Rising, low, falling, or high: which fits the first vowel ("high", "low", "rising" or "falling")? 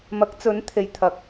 rising